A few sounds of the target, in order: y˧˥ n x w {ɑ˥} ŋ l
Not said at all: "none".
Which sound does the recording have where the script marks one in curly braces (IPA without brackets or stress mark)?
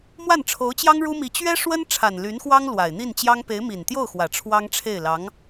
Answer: ɑ˥